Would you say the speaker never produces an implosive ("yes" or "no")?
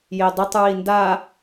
yes